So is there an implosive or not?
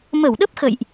yes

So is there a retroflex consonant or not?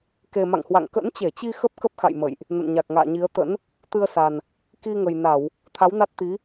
no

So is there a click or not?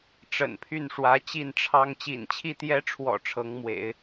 no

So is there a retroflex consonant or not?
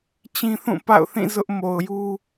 no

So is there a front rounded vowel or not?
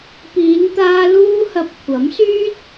yes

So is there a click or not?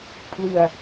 no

